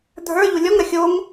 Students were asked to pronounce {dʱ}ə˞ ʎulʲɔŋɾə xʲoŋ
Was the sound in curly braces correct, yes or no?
yes